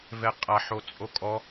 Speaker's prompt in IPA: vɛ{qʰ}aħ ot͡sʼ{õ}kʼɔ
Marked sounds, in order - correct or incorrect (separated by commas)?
incorrect, incorrect